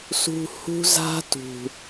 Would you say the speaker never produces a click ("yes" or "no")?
yes